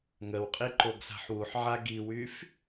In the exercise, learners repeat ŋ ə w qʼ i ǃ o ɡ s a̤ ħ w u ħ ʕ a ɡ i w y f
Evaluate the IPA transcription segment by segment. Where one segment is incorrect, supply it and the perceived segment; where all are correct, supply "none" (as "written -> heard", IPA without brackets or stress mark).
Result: none